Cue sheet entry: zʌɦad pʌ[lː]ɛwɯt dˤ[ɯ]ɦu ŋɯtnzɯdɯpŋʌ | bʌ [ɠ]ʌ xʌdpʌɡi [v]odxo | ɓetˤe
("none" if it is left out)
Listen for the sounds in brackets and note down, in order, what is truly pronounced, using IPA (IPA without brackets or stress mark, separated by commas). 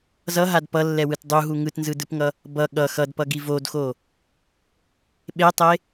lː, u, ɠ, v